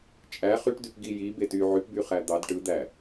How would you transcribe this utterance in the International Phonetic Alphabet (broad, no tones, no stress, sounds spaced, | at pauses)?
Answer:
t͡ʃʼ æ χ y ʈ d y p ɡ i j i b e t y ʕ y p b y χ æ d̪ ɑ d ʈ ɯ d̪ æ